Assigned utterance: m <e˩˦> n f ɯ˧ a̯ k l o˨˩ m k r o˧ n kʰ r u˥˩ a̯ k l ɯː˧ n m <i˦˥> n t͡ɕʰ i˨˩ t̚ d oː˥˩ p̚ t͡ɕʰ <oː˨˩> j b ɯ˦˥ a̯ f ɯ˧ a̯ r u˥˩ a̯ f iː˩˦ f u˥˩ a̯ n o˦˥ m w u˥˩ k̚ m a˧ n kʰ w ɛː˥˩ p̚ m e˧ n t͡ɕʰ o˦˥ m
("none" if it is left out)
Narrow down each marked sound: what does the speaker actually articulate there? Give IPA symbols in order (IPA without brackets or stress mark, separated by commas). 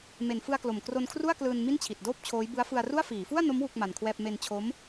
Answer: e˨˩, i˥˩, oː˦˥